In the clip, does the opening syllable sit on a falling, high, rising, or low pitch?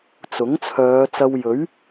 rising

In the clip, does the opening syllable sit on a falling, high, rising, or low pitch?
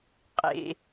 high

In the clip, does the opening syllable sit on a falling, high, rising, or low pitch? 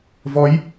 rising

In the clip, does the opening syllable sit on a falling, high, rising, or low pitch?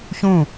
falling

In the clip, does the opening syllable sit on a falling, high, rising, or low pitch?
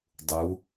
rising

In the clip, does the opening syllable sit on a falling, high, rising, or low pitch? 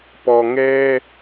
low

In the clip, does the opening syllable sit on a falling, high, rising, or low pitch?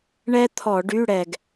high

